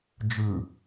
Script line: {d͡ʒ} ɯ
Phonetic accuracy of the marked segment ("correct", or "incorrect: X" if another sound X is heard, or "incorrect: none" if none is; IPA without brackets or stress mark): correct